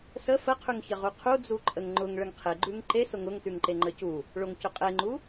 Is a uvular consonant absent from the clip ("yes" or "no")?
no